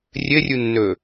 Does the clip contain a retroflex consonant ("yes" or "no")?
no